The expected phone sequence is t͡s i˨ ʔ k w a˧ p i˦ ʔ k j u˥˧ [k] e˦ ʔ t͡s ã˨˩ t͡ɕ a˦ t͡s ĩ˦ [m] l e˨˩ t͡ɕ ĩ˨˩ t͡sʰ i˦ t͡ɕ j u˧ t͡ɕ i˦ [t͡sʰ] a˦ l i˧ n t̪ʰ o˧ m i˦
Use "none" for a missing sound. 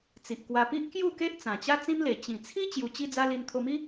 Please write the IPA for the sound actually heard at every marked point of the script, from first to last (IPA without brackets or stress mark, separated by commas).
k, m, d͡z